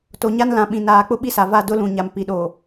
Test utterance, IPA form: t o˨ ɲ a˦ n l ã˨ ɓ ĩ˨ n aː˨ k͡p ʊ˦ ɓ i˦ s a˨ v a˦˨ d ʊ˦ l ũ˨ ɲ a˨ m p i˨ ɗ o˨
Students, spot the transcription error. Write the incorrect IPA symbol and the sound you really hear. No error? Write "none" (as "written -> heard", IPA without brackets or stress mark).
none